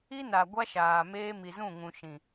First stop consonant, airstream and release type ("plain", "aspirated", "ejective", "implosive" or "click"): plain